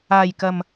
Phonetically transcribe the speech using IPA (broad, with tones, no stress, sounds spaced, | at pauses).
aː˨ j k ɐ˨ m